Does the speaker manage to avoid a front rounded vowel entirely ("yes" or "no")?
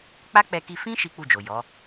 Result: yes